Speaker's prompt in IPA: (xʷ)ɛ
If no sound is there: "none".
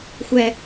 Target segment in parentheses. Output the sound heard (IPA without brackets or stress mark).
xʷ